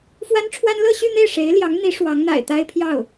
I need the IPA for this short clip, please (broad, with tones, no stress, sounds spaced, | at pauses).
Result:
f w a˥ n ʈ͡ʂʰ w a˥ n l ɤ˥˧ ɕ y˥˧ n̪ e˥˩ ɪ̯ ʂ e˧˥ ɪ̯ l j ɑ˧˥ ŋ n̪ i˧˥ ʂ w ɑ˧˥ ŋ n̪ a̰˨˩ ɪ̯ t̪ a˥ ɪ̯ pʰ j ɑ˥˩ ʊ̯